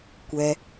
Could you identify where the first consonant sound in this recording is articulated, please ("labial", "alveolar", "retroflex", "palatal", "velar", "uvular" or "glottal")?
velar